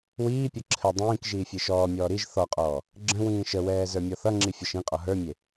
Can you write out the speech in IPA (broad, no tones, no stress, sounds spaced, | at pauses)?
w iː pʲ ʌ ǁʰ ɘ dˤ ĩː k ʒ iː fʲ e ʃ ɔː mʲ ɔː ɾ i ʒ θ ɔ qʼ ɔː | ɡ͡ǁ ə̃ w ĩː ʃ ə w ɛː z ə˞ mʲ ɔ θ ʌ ŋ͡ǁ i fʲ ʌ ʃ ĩ qʼ ɔ ɦ ə˞ mʲ e